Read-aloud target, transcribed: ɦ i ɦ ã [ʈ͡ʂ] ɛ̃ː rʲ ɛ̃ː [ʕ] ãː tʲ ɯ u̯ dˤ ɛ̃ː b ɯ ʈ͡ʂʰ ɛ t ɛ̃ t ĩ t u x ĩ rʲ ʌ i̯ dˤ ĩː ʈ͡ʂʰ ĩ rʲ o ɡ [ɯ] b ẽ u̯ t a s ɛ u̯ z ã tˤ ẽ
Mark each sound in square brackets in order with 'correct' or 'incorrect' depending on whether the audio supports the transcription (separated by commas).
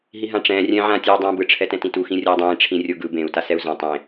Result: correct, correct, correct